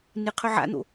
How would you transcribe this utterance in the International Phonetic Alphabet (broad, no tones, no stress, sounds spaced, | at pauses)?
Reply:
n ɨ qʰ ɵ ʕ a̰ n̪ o̰